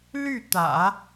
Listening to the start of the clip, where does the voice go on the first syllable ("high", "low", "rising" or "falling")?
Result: falling